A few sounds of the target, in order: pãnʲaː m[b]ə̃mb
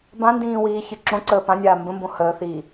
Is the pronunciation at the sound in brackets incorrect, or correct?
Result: correct